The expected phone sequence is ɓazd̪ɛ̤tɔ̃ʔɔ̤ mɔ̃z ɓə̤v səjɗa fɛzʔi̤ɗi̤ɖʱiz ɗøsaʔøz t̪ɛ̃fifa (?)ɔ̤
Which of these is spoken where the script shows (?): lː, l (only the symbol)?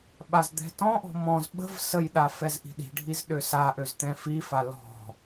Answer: l